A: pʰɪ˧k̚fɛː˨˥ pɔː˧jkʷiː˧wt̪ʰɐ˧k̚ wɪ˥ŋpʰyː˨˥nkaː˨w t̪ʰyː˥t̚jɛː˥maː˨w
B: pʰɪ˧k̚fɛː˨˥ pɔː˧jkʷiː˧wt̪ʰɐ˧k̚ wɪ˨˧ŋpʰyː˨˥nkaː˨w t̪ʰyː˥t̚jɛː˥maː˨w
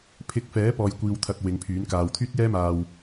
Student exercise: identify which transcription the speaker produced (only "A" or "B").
B